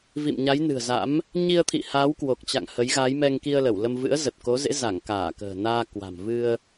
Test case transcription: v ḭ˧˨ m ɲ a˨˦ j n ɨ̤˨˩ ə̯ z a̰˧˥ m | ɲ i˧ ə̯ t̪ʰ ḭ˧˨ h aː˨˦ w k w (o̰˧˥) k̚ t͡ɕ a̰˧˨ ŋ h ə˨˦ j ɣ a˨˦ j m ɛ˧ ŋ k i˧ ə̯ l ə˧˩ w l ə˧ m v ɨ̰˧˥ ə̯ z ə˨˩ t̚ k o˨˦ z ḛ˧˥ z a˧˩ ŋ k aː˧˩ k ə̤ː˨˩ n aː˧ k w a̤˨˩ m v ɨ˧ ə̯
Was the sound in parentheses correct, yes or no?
no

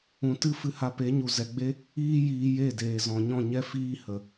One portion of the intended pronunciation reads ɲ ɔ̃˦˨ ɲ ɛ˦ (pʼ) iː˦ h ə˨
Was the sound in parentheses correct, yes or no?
no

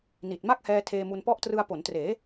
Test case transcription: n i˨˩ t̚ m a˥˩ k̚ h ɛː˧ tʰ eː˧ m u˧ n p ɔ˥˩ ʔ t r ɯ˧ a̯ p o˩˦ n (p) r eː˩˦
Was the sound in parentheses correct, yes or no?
no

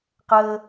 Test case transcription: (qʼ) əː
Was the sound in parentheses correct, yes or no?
no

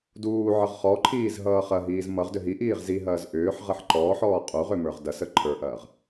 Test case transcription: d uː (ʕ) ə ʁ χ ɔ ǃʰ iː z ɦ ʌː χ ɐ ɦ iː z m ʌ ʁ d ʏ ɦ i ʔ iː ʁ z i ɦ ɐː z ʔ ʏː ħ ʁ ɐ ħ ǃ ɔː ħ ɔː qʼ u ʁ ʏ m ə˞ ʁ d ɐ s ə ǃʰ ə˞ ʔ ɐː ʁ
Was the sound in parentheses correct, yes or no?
yes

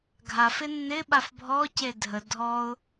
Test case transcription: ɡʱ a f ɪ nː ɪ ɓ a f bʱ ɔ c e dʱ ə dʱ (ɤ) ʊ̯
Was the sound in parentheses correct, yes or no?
no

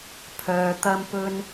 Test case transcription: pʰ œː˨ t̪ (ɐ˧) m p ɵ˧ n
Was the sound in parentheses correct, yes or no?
yes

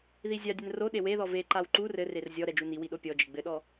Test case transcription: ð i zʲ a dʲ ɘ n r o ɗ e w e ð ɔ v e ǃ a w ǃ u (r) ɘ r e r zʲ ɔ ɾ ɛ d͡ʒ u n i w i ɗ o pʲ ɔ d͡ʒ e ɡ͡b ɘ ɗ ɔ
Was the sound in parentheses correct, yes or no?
yes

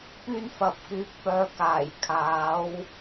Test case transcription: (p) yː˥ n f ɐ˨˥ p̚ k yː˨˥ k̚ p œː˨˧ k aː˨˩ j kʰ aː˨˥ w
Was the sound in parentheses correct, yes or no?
yes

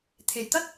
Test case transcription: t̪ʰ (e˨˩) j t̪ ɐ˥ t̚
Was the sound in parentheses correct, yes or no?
yes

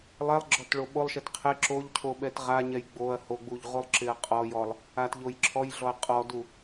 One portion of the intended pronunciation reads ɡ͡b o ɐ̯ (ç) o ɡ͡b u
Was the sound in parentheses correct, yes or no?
no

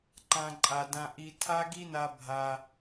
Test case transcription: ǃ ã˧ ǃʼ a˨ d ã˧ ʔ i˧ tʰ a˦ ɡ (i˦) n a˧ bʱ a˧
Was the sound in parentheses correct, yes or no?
yes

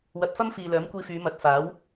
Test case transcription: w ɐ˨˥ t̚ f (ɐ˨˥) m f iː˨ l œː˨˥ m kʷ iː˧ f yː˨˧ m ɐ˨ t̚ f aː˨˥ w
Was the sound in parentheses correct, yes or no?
no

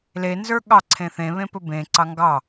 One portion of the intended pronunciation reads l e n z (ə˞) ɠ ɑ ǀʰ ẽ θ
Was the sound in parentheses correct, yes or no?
yes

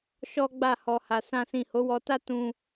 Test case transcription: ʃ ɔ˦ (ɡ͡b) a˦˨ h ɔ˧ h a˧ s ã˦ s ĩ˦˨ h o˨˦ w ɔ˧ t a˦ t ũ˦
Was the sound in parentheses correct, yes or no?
yes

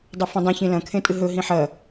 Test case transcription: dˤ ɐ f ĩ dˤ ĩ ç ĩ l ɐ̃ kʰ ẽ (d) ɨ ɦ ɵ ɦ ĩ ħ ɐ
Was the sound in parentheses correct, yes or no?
no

